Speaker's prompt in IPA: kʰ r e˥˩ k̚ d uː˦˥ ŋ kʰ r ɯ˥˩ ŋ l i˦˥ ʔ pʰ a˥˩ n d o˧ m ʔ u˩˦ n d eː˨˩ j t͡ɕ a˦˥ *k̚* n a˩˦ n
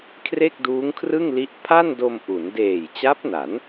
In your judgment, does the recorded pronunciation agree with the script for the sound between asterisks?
no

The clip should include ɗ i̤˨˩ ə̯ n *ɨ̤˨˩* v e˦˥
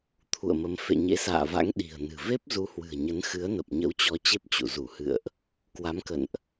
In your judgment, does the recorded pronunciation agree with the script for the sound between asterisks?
yes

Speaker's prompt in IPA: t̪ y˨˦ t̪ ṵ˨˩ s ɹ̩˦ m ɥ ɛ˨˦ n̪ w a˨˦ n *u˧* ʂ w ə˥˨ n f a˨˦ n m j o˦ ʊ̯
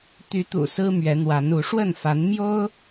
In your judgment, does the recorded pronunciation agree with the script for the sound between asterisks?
no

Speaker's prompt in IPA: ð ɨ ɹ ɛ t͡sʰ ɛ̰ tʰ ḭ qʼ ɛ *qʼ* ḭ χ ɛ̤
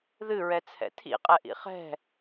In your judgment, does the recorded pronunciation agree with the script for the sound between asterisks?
no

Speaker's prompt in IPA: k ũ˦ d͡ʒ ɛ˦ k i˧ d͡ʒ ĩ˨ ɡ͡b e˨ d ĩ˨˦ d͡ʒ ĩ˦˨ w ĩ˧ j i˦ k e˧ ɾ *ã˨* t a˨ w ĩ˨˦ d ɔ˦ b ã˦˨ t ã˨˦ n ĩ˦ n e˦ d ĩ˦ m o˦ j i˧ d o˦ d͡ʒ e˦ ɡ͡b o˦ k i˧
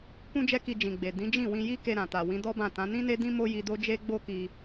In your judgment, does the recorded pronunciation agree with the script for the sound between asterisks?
yes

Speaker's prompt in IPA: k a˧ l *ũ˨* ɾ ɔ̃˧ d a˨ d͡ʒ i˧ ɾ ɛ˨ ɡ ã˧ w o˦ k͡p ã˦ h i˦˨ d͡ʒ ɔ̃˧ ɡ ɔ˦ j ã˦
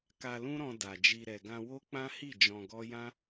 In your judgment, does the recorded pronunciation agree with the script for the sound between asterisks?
no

